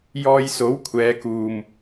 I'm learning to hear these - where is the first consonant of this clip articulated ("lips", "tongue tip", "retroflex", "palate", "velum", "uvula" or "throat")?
palate